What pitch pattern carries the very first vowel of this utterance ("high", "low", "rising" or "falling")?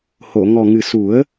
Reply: low